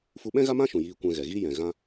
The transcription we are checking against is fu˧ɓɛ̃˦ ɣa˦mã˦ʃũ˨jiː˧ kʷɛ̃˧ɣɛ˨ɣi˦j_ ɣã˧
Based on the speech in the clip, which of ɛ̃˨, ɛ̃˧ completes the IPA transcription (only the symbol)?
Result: ɛ̃˨